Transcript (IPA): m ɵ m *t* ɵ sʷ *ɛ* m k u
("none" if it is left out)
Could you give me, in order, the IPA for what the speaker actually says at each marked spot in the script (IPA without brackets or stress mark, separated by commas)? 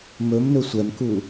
n, ɛ